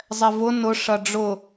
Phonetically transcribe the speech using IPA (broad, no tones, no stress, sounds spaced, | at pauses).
zˤ ɛ v ʊ n ʊ ʂ ɐ ɖ͡ʐ ʊ